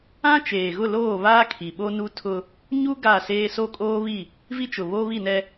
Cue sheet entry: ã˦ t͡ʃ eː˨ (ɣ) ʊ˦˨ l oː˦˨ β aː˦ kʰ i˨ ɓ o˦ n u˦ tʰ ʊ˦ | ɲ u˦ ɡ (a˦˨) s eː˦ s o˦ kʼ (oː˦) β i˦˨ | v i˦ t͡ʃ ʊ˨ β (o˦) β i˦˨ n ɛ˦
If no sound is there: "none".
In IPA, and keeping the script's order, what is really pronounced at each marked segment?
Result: ɣ, a˦˨, oː˦, o˦

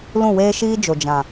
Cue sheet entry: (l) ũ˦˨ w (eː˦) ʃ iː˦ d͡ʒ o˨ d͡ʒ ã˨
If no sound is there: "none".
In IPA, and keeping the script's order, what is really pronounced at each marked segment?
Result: l, eː˦

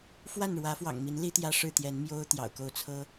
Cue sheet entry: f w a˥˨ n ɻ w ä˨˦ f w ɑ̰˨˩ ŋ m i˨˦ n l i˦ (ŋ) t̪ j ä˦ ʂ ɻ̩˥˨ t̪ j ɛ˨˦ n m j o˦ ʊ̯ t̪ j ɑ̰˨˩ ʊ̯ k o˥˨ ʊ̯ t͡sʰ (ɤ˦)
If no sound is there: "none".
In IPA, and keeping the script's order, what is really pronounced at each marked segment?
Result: none, ɤ˦

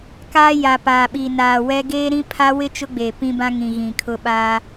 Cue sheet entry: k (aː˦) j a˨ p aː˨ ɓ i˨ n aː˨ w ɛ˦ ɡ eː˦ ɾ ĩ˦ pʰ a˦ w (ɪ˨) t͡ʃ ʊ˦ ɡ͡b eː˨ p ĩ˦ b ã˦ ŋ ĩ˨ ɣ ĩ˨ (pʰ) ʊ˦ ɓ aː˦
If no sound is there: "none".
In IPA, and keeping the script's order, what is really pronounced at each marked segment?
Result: aː˦, ɪ˦, kʰ

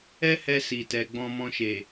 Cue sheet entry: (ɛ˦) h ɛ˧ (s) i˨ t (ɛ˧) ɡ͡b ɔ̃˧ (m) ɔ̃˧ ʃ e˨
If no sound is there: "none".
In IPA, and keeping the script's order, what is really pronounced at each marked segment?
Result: ɛ˦, s, ɛ˨, m

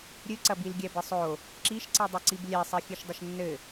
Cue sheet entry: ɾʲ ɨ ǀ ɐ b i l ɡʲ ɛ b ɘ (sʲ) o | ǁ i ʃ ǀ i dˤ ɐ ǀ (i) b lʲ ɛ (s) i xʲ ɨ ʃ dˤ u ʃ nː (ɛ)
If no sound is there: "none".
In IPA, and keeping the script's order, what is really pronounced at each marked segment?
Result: sˤ, i, sˤ, ɘ

